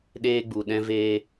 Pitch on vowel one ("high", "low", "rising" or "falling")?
high